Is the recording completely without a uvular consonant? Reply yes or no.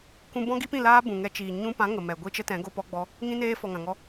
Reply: yes